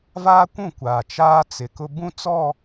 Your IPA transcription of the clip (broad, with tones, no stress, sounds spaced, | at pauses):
v aː˦ kʷ ũ˦˨ kʷ aː˨ t͡ʃ aː˦ t͡s ɪ˨ k ʊ˦ b ũ˦˨ t͡s ɔ˦˨